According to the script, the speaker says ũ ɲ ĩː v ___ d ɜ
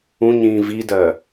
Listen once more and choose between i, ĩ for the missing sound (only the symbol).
i